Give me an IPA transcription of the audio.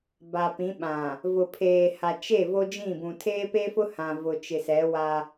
ba˨pĩ˨˦ɓã˨ | vʊ˨pʰeː˨ha˨t͡ʃe˦˨ vo˦d͡ʒĩ˦˨bũ˨ tʰeː˦pe˦fʊ˦ hã˨ vʊ˨t͡ʃɪ˨sɛ˨˦ wa˦

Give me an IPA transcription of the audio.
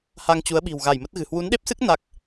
ha˧ŋt͡ɕu˨˦ə̯ɓi̤˨˩w ɣa˧˩jmə˦˥t̚ɣɨ̤˨˩ hwu˨˦nɗe˦˥p̚sɨ˦˥k̚ na˦˥k̚

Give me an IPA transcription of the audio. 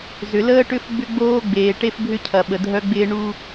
zʏ˨ləː˦ʈʏ˦f ɡ͡bʏ˦ɡ͡boː˦ɡ͡beː˨ ʈe˦fbʱʏ˦cʰɐ˨ ɓə˨dʱœ˦ɡ͡bɪː˦ ɳu˦

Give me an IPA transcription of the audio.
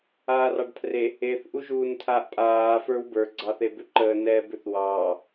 aːrɑɖpʰre | eθ ʔuʒuːntʰaːʔpʼaː fə˞wbə˞ ɡ͡ǀɑθebʏǃəː nɛːbʏθwɑː

